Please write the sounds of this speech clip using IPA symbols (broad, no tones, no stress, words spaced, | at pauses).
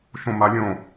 ʃõmalʲõ